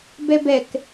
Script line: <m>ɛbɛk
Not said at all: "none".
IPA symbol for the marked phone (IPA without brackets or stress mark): b